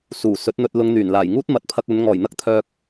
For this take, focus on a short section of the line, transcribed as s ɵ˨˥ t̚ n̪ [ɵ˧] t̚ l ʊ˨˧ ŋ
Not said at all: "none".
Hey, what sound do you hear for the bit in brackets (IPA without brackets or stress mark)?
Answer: ɵ˧